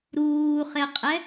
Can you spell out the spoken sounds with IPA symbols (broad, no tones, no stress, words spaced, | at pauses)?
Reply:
ɾuːχeqʼɛ